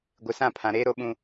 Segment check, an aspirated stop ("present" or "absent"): present